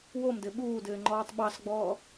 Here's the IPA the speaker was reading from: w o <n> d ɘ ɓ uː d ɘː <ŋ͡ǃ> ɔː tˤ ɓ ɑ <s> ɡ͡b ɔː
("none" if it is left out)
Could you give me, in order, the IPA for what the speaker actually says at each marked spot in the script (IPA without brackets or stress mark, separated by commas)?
m, ŋ͡ǃ, s